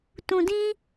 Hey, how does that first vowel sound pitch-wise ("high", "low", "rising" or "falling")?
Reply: low